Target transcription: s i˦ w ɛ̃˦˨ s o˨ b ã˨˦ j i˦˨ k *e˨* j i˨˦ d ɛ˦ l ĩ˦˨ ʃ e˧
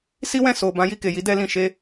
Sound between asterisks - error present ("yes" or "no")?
no